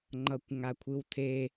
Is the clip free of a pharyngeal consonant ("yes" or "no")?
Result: yes